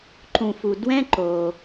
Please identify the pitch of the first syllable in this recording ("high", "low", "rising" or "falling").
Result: low